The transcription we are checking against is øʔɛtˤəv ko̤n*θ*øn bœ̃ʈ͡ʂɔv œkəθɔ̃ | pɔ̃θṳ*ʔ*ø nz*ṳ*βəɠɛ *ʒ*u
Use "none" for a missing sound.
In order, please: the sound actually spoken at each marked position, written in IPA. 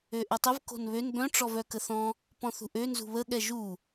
β, ʔ, ṳ, ʒ

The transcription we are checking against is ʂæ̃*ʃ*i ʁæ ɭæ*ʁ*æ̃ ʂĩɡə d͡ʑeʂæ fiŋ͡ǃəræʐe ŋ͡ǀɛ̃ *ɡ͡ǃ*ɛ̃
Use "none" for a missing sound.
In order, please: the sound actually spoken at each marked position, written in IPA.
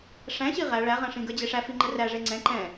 ɕ, ʁ, ǃ

